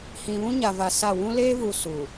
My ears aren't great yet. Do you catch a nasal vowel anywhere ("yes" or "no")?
yes